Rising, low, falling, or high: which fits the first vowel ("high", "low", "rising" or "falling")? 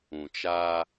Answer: low